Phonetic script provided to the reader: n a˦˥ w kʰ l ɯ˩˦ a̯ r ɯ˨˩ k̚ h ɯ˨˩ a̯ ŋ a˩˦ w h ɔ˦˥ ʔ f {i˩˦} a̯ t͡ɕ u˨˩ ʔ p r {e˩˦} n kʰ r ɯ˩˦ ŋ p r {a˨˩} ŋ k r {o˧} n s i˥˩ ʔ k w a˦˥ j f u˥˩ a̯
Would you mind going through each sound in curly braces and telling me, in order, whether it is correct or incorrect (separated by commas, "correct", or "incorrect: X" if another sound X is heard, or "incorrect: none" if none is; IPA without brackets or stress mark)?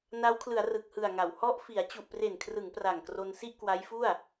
correct, incorrect: e˨˩, correct, correct